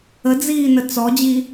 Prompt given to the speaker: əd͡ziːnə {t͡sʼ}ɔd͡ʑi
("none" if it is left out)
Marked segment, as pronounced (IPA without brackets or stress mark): t͡s